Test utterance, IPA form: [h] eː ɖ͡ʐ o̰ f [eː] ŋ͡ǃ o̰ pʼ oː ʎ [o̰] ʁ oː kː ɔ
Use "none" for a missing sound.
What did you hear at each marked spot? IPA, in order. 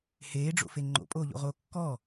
h, e, o̰

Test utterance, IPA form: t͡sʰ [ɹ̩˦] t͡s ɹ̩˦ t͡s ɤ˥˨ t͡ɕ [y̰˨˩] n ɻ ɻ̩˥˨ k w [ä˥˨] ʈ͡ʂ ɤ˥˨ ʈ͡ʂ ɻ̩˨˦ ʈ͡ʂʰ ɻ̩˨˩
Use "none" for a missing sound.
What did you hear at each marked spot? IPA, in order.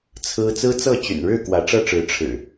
ɹ̩˦, y̰˨˩, ä˨˦

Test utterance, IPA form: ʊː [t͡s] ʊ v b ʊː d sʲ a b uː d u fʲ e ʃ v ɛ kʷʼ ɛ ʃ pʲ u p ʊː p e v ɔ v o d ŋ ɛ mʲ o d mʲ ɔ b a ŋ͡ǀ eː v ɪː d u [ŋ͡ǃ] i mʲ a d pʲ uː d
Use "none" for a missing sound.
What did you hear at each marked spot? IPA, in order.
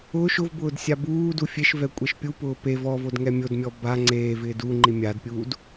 ʃ, ŋ͡ǃ

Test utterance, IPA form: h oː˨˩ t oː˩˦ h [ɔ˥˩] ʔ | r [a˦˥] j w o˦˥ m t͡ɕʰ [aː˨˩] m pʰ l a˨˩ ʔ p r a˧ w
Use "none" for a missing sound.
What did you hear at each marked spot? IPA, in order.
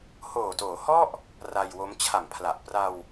ɔ˥˩, a˧, a˨˩

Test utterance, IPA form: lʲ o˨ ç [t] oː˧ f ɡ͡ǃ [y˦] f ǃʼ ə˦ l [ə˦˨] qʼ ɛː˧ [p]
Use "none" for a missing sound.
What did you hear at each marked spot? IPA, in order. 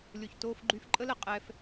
t, y˧, ə˨, f

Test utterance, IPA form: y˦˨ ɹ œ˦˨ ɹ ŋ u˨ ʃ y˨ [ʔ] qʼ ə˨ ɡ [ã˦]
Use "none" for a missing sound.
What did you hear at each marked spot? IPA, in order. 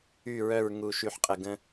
ħ, ə̃˦

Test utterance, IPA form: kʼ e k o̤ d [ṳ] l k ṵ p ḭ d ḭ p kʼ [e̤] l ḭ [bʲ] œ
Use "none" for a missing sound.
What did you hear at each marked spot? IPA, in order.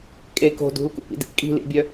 ṳ, i̤, bʲ

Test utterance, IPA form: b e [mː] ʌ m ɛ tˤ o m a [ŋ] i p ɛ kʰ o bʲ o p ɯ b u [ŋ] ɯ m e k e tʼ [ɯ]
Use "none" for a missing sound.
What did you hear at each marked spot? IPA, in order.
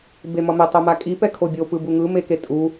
m, kʼ, ŋ, u

